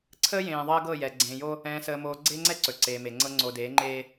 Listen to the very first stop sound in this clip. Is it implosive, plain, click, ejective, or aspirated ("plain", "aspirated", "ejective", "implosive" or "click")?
click